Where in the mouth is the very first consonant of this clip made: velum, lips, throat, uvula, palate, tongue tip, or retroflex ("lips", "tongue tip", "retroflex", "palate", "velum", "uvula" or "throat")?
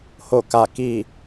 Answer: throat